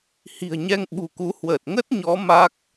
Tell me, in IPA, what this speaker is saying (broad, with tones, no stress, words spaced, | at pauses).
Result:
hi̤˨˩ə̯ɲɛ˧ŋ ɓṳ˨˩ku˨˦ hwəː˨˩t̚ŋə˦˥t̚ɲɔ˨˦ ma˦˥k̚